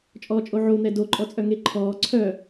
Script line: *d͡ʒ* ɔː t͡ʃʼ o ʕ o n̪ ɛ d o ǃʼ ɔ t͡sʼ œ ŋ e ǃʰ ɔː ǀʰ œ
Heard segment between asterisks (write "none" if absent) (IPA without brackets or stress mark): t͡ʃʼ